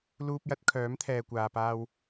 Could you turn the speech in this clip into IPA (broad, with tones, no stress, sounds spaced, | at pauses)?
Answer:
l uː˧ p̚ j ɐ˨˥ t̚ kʰ œː˨˥ m t̪ʰ ɛː˨ kʷ aː˨ p aː˧ w